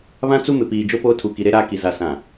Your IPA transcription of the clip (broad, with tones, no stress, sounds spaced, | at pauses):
β ã˦ t͡s u˦ m ɪ˨ p iː˨ d͡ʒ o˦ p oː˦ tʰ u˨ k i˨ ɾ e˦ ɾ aː˦ k i˨ z a˨ s ã˨